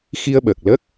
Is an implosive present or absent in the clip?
present